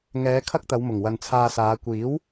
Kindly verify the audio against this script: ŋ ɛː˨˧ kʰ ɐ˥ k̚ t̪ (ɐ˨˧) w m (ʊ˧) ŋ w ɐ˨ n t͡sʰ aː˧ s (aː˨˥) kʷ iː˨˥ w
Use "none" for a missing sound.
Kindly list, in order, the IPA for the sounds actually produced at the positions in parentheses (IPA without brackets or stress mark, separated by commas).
ɐ˨˧, ʊ˨˩, aː˨˧